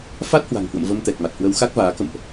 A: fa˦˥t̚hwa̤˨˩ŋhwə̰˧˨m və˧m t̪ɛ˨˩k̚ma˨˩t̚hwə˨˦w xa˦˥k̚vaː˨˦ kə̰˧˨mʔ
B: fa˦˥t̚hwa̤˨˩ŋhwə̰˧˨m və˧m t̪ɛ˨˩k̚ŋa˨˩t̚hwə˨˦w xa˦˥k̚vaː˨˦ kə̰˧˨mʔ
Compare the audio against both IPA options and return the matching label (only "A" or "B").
A